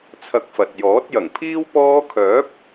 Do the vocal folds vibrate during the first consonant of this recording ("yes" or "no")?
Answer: no